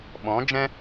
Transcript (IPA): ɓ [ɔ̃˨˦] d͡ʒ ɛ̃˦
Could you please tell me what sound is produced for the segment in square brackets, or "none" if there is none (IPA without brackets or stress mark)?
ɔ̃˨˦